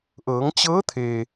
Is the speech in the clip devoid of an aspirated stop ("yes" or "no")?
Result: no